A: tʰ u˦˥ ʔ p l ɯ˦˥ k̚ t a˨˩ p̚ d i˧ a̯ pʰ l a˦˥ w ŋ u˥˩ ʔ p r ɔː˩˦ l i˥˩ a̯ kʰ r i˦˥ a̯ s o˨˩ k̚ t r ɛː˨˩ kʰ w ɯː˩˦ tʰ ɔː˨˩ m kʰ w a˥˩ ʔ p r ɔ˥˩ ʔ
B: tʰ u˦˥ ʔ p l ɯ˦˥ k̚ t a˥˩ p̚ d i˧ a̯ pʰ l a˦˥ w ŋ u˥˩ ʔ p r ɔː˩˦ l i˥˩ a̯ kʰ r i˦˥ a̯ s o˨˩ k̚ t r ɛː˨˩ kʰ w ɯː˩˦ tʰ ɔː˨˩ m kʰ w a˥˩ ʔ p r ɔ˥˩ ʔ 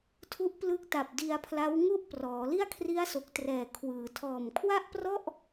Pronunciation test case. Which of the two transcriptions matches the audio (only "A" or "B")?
A